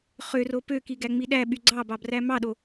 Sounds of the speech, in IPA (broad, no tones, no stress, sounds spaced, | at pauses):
χ ø r o p ø k i ɡ æ ŋ͡m i ɗ æ ɓ y ɡ͡ǀ ɑ b ɑ b r æ m ɑ ɗ o